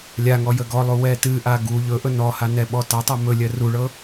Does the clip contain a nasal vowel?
no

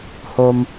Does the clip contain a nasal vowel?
no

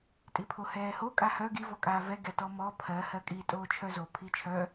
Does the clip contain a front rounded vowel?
yes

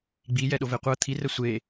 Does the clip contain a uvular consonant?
yes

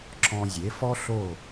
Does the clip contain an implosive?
no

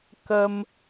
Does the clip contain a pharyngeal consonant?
no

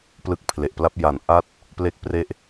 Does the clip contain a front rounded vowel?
no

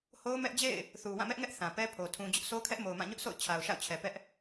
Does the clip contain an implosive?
no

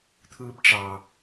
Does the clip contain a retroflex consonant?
yes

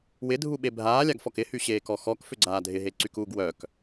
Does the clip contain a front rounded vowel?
yes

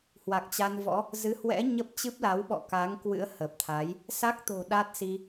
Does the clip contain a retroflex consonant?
no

